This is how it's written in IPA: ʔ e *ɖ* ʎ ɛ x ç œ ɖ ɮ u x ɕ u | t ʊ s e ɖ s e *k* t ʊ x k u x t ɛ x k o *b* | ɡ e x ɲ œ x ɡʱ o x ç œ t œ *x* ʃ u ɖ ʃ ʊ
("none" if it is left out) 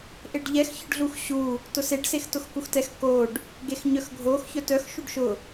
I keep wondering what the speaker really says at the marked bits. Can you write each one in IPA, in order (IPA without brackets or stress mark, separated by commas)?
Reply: ɖ, x, ɖ, x